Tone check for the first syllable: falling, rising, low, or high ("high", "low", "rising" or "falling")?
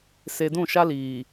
low